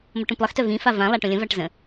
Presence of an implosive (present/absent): absent